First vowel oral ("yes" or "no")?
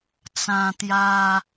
no